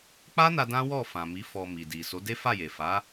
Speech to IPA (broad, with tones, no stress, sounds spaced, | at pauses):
k͡p a˦ n a˧ d ã˦ w ɔ˦˨ f ã˨ m i˨˦ f ɔ˧ m i˨ d i˨ s o˨˦ d e˦ f a˦˨ j e˨ f a˨˦